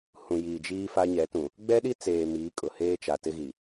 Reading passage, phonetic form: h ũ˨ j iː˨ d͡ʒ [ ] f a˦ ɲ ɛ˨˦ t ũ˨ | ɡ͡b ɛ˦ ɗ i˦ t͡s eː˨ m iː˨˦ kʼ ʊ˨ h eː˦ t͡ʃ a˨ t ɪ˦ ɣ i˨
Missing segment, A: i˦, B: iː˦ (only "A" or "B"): B